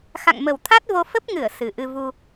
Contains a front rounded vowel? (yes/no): no